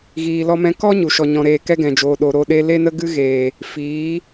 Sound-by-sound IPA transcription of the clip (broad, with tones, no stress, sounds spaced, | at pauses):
ɣ iː˨ l ɔ˧ m ɛ̃˧ k ɔ˦ ɲ u˨ ʃ ɔ˨ ɲ ɔ̃˨ ɾ eː˨ k ɛ˦ ɡ ɛ̃˨ d͡ʒ oː˨ ɗ o˨ ɾ o˧ ɗ e˧ l e˦ n ə˦ ɡ ɨ˦ ɣ eː˨ | f iː˨˦